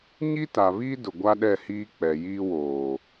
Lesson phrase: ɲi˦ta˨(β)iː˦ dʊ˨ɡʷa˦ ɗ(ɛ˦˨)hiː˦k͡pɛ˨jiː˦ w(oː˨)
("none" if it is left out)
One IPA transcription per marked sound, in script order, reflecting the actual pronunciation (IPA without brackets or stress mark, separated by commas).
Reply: β, ɛ˦˨, oː˨